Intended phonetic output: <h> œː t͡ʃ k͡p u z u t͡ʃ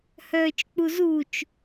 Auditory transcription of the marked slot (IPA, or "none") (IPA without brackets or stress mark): h